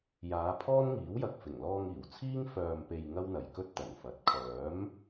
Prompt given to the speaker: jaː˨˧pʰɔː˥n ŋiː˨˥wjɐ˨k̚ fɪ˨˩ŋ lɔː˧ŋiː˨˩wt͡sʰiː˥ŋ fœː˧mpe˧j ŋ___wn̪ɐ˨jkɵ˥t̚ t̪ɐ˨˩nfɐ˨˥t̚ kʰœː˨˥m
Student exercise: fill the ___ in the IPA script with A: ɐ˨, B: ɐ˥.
B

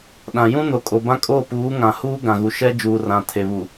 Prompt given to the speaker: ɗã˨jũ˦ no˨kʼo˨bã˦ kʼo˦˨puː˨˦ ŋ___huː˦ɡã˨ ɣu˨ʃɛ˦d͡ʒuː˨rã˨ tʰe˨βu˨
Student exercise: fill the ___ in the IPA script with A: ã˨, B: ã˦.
A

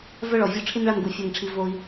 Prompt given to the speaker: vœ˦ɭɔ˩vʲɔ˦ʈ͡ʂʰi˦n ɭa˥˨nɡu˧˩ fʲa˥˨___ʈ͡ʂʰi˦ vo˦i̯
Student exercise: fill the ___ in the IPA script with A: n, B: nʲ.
A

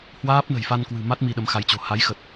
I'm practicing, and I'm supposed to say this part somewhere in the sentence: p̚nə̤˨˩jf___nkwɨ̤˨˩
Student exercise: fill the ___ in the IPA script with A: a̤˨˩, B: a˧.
B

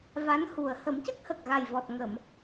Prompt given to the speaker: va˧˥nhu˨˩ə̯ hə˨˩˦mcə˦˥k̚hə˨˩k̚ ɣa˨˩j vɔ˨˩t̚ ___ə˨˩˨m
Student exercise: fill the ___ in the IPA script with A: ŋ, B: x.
A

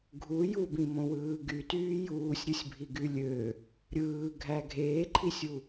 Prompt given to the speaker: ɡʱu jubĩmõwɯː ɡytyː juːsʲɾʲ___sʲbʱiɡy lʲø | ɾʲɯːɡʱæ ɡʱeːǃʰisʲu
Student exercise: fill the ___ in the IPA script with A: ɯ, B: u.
A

